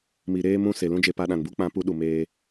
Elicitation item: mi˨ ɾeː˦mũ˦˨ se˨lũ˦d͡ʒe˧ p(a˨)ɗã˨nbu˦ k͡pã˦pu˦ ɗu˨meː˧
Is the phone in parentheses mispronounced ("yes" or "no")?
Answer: yes